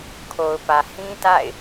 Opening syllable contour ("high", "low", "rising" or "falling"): low